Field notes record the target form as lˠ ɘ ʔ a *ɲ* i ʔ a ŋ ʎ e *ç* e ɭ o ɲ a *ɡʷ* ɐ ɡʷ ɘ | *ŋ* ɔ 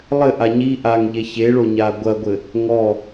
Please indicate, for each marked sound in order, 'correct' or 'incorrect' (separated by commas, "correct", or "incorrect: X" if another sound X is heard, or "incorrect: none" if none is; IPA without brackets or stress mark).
correct, correct, correct, correct